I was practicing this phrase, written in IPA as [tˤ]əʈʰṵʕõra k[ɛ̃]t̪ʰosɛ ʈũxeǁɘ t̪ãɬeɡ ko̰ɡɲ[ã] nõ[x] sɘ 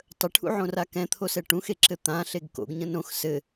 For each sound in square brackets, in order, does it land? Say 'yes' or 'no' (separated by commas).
yes, yes, no, yes